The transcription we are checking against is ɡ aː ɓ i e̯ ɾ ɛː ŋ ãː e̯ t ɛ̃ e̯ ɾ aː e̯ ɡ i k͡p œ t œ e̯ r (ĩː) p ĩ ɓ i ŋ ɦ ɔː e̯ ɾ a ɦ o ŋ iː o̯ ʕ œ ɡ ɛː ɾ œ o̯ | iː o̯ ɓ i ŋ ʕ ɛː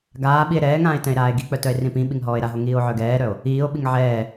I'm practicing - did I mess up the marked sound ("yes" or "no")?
yes